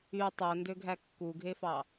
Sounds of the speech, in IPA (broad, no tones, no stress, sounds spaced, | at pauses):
y tˤ o n d ø ɡʱ æ kː u ɡʱ e f ɑ